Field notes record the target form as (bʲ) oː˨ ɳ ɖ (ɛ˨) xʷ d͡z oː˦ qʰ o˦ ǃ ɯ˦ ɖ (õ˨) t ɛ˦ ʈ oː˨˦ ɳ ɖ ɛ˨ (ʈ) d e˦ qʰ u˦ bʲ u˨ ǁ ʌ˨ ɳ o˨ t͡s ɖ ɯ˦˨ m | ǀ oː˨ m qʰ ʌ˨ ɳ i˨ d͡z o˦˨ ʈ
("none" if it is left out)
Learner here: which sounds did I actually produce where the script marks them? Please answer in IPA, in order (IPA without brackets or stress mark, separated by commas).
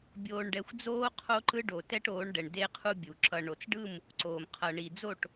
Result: bʲ, ɛ˨, o˨, ɳ